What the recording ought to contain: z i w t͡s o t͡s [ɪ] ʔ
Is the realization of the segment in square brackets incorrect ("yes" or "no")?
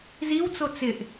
no